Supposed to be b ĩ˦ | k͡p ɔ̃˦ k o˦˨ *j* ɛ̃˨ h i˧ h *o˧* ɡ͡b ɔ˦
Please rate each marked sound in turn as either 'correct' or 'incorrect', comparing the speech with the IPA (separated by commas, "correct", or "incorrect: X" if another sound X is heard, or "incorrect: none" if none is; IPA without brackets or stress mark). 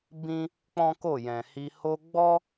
correct, correct